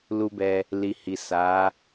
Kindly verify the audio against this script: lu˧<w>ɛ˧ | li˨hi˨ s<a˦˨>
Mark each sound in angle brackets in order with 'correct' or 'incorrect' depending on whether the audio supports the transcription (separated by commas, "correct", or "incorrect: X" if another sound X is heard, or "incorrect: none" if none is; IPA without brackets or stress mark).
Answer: incorrect: b, incorrect: a˨˦